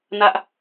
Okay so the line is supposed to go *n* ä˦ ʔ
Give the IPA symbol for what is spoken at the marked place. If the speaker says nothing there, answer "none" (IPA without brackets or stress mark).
n